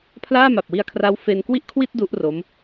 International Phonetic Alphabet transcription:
pʰ l aː˥˩ m a˨˩ p̚ w i˧ a̯ kʰ r a˦˥ w f e˧ n k w i˥˩ ʔ kʰ w i˥˩ t̚ d u˦˥ ʔ r o˦˥ m

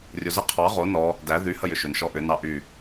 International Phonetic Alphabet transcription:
rʲ o z ə qʰ ɑ ʁ o n ɔ | d æ ð y h ə j ʏ ʃ ʏ n ʃ ɔ ʔ ʏ n ɑ ʔ y

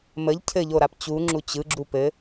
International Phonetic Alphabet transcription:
m ə ʎ cʰ ɘ ʎ o ɾ a p t͡ɕ u ŋ͡ǁ u t͡ɕ ɯ ɡ͡ǁ u p ɘ

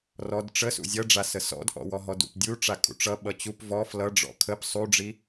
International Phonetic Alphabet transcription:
r ɔ d ʈ͡ʂ ə s ṵ zʲ ʌ ɖ͡ʐ a s ə s ɔ̰ d ʔ ɔ̰ w ɔ ɦ ɔ d ṵ p dʲ u ʈ͡ʂ a kʼ ṵ ʈ͡ʂ ʌ ɓ ʌ t͡ɕ u p v ɔ f l ʌ ɖ͡ʐ ɔ̰ kʰ ə p sˤ u ɖ͡ʐ i

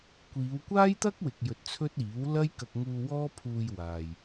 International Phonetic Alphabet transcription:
kʷ iː˨˧ w kʷ aː˥ j t̪ ɐ˥ k̚ w ɪ˨ k̚ j ɵ˧ t̚ t͡sʰ ɵ˥ t̚ iː˨˥ w l ɐ˥ j k ɐ˧ k̚ ŋ uː˧ w ɔː˥ pʰ uː˧ j w aː˨ j

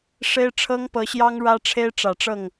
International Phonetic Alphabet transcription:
ʂ e˥ ɪ̯ ʈ͡ʂʰ ɤ˥ ŋ p ɤ˧˥ ɕ j ɑ˥ ŋ ɻ ä˥ ʈ͡ʂʰ e˥ ɪ̯ ʈ͡ʂ ä˨˩ ʈ͡ʂ ɤ˥˩ ŋ

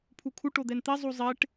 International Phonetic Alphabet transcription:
pʰ u kʰ u ʈ o d̪ ɛ n t̪ e zˤ u zˤ e ʈ

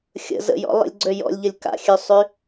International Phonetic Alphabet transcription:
xʲ ə̰ z ə̰ j ɔ̰ lˠ ə̰ lʲ ɡ͡ǀ ø j ɔ̰ lʲ ʎ ə lʲ k a̰ xʲ ø sˤ y

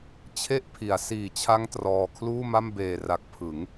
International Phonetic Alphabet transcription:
t͡ɕʰ e˥˩ ʔ pʰ i˩˦ a̯ s iː˨˩ t͡ɕʰ a˦˥ ŋ t r ɔː˧ kʰ l uː˥˩ m a˥˩ m b eː˨˩ r a˨˩ k̚ pʰ ɯ˩˦ ŋ

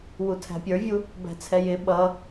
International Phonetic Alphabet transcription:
w u tʰ æ̤ pʲ ə˞ vʲ u | b æ̤ t͡sʰ ɛ j ɪ ɓ ʌ

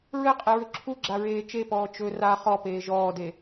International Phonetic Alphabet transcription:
ɹ ɘ qʼ e ɹ ɵ ǁʰ u ɡ͡ǁ a ɹ eː t͡ʃ e p ɔː t͡ʃ ɵ r a χ ɔ p eː ʒ ɔː d e

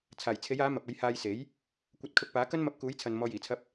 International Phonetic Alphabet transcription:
t͡sʰ aː˨˩ j t͡sʰ e˨˥ j aː˨˥ m ɐ˨ p̚ ɐ˧ j h aː˧ j s e˨˥ j | kʷ ɐ˧ t̚ kʰ ʊ˧ k̚ p aː˨˥ k ɐ˥ n m ɐ˧ p̚ k uː˨˥ j t͡sʰ ɐ˨ n m ɔː˧ j iː˨˩ t͡sʰ ɐ˥ p̚

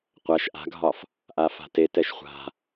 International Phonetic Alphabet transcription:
qʷ a ʃ ʔ a̤ ɡʱ ɒ f | ʔ a f a̤ t e t ɛ ʃ χʷ a̤

